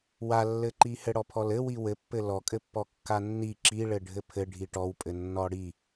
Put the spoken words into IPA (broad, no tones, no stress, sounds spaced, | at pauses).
w a lː ɘ ǃ i h ɘ ɽ ɔ pʰ ɔ l ɘ w i w ɘ pː ɘ l ɔ kʼ ɘ pː ɔ kː a nː i ǁ i ɭ ɘ ɖʱ ɘ pʰ ɘ ɖʱ i ʈ ɔ w pʼ ɘ nː ɔ ɽ i